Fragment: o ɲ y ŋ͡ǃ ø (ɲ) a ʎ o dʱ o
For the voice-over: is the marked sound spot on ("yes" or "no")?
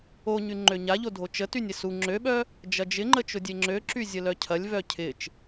yes